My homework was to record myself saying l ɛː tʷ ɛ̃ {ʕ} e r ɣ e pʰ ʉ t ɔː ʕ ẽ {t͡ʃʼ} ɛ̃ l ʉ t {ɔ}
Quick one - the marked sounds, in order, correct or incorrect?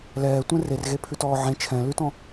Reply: incorrect: r, incorrect: t͡ʃʰ, incorrect: ɔ̃

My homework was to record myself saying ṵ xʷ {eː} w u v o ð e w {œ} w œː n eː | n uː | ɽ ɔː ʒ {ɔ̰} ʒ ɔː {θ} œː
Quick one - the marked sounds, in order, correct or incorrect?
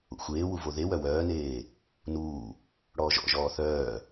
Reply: correct, correct, correct, correct

